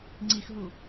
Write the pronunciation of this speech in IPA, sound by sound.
ŋ͡ǀ i x ɦ u

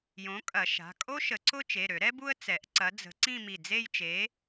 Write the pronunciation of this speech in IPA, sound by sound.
j õ˨˥ kʼ ɐ˨˩˦ ʃ a̤˩˧˩ kʼ o˥ ʃ ə˨˩˦ ǀ ʊ˥ t͡ʃ e˩˧˩ ɾ ø˨˩˦ ɾ ɛ˥ b u˥ ə̯ t͡s ɛ˨˩˦ ʔ ǀ ɐ˨˥ d͡z ə̤˨˥ ǀ ĩ˥˧ m i˧˩ d͡z e˥˧ j t͡ʃ e˨˥

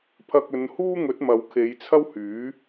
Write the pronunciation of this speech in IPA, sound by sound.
pʰ ɐ˧ k̚ ɵ˨˧ n h uː˥ ŋ ɵ˨˥ t̚ m ɐ˨˧ w kʰ e˨˧ j t͡sʰ ɐ˥ w h yː˨˥

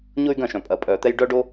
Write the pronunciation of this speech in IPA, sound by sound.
ɲ ʊ˦ y̯ ɡ ɐ̃˦˨ ʃ œ̃˨ pʼ ɐ˨ pʼ œː˨ t̪ ɛ˧ j ɖ œ˦ ɖ o˦

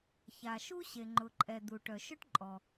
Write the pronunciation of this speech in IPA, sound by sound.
ç a˩ ʃ u˥ ɕ e˩ ŋ͡ǃ ʊ˩ ǃʼ ɛ˩ d̪ u˩ ʈ œ˩ ʃ ɵ˥ ʈ ǃʼ ɔ˩

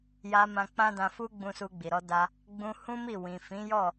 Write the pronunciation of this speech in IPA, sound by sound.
j a˧ m ã˧ k͡p ã˦ d ã˧ f u˦ ɡ͡b ũ˧ s u˧ ɡ͡b i˨ ɾ ɔ˧ d a˧ | ɡ͡b ũ˧ h ũ˦ m i˦˨ w ĩ˨ f ĩ˨˦ j ɔ˦˨

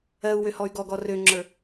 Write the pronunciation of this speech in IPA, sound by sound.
ɜ u̯ w ø h ɔ y̯ ɡ ɔ ɡ ɔ r ø ŋ͡ǁ ə˞

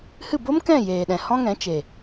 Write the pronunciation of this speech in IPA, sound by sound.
h ɨ˦˨ b o˦ m k ɛ̃˦˨ j eː˨ ɗ ɛ̃˨ h ɔ̃˦ ŋ ɛ̃˨˦ t͡ʃ e˨

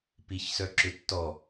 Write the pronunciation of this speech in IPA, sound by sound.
p i ç s œ ǁ ʏ tː ɔ

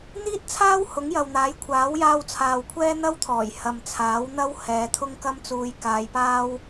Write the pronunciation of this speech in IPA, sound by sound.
n̪ iː˥ t̚ t͡sʰ aː˥ w h ʊ˨˥ ŋ j ɐ˨ w n̪ aː˨˥ j kʷʰ aː˨˥ w j aː˧ w t͡sʰ aː˨ w kʷʰ ɛː˥ n̪ ɐ˥ w t̪ʰ ɔː˨˩ j h ɐ˨ m t͡sʰ aː˨˥ w n̪ ɐ˥ w h ɛː˨˧ t̪ʰ ʊ˥ ŋ k ɐ˥ m t͡s uː˧ j k aː˨˧ j p aː˥ w

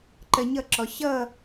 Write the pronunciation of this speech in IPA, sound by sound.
ǃ ɜ ɲ ʌ ǁ ɔ ɕ ʌ

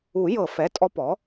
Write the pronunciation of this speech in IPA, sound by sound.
u˨˩˦ j ɤ˨˩˦ f ɛ˩˧˩ tʼ ɔ˧˥ p ɔ˩˥

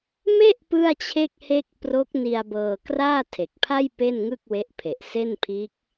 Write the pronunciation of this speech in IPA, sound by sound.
m e˥˩ ʔ p ɯ˥˩ a̯ t͡ɕʰ e˥˩ k̚ h e˥˩ k̚ p r o˦˥ k̚ n i˧ a̯ b ɤː˧ k r aː˥˩ tʰ e˨˩ k̚ pʰ a˥˩ j p e˥˩ n ŋ ɯ˥˩ k̚ w e˦˥ ʔ pʰ e˨˩ ʔ s e˥˩ n pʰ iː˦˥ k̚

